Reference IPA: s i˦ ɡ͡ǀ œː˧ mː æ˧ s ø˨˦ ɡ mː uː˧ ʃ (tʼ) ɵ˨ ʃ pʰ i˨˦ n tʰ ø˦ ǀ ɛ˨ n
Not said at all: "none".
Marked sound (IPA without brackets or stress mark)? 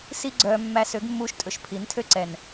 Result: tʼ